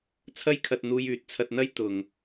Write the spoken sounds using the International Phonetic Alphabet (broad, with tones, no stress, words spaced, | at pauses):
t͡sʰɐ˥jkʰɐ˧t̚ n̪uː˧jyː˨˥t̚t͡sʰɐ˧t̚n̪ɐ˥j t̪ʊ˨ŋ